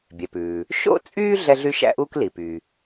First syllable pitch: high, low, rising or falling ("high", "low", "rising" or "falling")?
low